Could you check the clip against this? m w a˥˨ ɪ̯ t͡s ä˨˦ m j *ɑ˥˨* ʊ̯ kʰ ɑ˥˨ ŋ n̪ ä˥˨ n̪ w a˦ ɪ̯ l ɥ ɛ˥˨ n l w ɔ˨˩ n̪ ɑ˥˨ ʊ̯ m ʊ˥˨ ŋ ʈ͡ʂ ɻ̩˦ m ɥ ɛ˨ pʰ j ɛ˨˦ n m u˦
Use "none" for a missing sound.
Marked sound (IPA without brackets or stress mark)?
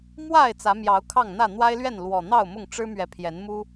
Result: ɑ˨˦